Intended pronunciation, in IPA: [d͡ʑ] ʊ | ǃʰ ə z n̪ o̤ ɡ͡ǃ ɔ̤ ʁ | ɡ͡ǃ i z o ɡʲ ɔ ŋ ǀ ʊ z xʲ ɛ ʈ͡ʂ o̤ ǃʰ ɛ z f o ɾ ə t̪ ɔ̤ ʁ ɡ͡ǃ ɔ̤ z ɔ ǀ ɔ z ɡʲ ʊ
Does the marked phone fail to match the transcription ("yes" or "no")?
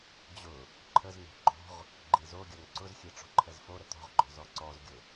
no